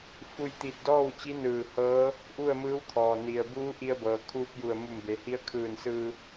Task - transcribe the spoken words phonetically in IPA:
f u˧ j t̪ i˧˩ t̚ d ɔː˥˨ w t͡ɕ i˧˥ n ɯː˧˩ h ɤː˧˥ | ʔ u˥˨ ə̯ m ɯː˧˥ w t̪ʰ ɔː˩ n i˩ ə̯ b uː˧˥ ʔ i˧ ə̯ b ɤː˩ kʰ uː˧ p̚ j u˧˩ ə̯ m u˧˩ m b e˩˧ h i˧˥ ə̯ kʰ ɯː˧˩ n s ɯː˧

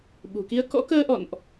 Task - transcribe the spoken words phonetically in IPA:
ɓ ṳ˨˩ k i˧ ə̯ k ɔ̰˧˥ k əː˧ ʔ ɔ̰˧˨ n ʔ

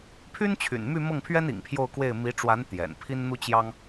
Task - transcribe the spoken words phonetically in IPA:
pʰ y˥ n t͡ɕʰ y̰˨˩ n m y˥˧ m ɤ˥˩ ŋ pʰ ɥ ɛ˥ n ḭ˨˩ ŋ pʰ j o˥˧ ʊ̯ k w e˥˩ ɪ̯ m i˧˥ ʈ͡ʂ w a˧˥ n t̪ j ɛ̰˨˩ n pʰ i˥ n n̪ u˥ t͡ɕ j ɑ˥ ŋ

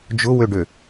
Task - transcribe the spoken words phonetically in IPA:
d͡ʒ ʊ w ø ɖ ø

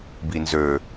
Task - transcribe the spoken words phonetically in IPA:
b i n z ø

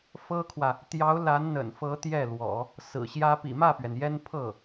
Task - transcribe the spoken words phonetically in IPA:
f ɤ˥ kʰ w ä˨ | t̪ j ɑ˧˥ ʊ̯ l a˧˥ n n̪ ə̰˨˩ n f ɤ˧˥ t̪ j ɛ˥˩ l w ɔ̰˨˩˦ | s ɹ̩˨˩ ɕ j ä˥ p ḭ˨˩ m ä˥˩ p ɥ ɛ˩ n j ɛ˥ n pʰ ɤ˥˩

